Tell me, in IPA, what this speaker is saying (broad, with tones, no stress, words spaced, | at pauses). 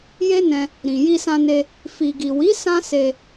je˦nɛ̃˧ | ɾĩ˨ ji˧sã˧ne˧ | fi˨ɡi˨wi˨˦ sã˦se˧